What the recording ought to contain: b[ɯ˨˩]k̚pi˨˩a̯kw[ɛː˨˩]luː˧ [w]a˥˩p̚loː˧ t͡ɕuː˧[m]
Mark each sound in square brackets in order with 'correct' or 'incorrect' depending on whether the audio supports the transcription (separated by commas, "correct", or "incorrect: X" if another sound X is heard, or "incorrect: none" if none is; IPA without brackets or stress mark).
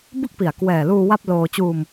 incorrect: ɯ˥˩, correct, correct, correct